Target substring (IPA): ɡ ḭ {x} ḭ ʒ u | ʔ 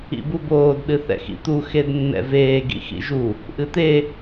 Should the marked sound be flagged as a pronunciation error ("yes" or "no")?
no